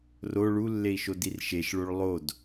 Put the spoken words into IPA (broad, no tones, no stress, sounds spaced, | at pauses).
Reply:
r o ɭ u lː e i̯ ʃ o d i r ʃ e ʃ ɭ o ɭ lˠ o d